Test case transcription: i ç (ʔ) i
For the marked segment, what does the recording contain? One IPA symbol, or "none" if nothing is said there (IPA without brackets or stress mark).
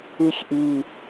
ʔ